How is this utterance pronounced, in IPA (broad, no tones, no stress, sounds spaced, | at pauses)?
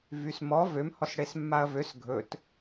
v y s m ɔ v ø m h ɔ s ɽ e s mː a ɐ̯ v ø s ɡʱ ɵ t